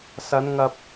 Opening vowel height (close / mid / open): open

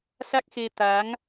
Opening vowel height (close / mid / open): open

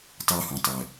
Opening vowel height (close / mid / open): close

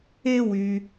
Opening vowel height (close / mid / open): mid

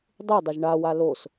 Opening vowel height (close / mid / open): close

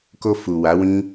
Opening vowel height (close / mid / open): mid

